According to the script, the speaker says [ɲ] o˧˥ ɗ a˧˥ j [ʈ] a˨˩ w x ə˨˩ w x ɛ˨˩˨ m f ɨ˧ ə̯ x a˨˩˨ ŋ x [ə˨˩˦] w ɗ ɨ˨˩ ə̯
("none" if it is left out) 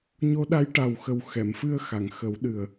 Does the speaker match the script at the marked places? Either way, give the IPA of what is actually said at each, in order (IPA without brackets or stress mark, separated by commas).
ɲ, ʈ, ə˨˩˦